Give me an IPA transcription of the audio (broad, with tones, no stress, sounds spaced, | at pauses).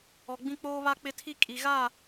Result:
ɔ˨ ɡ͡b ĩ˦ k͡p oː˦ β a˦ k͡p ɪ˦ tʰ i˦ kʼ i˨ ɣ aː˦˨